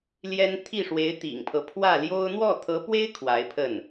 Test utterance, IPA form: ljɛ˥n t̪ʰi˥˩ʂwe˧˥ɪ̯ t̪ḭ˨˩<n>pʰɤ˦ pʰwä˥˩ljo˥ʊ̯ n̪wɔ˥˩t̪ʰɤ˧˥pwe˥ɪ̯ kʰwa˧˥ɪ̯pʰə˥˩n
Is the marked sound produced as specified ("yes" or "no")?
no